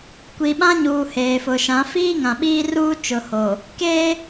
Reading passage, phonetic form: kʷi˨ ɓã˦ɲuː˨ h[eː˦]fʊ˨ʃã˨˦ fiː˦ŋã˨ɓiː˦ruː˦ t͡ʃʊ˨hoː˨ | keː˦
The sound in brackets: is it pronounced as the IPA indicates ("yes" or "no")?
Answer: no